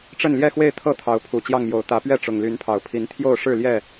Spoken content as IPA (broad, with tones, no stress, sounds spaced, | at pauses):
ʈ͡ʂ ə˥˨ n l j ɛ˥˨ x w e˥˨ ɪ̯ t̪ʰ ɤ˥˨ t̪ʰ ɑ˨˦ ʊ̯ pʰ u˨˩ t͡ɕ j ɑ˥˨ ŋ m j o˨˩ ʊ̯ t̪ ä˨˦ p ɥ ɛ˥˨ ʈ͡ʂ ʊ˨˩ ŋ l y˨˦ n pʰ ɑ˨˩ ʊ̯ pʰ i˨˦ n t̪ʰ j o˥˨ ʊ̯ ʂ ɻ̩˥˨ l j ɛ˥˨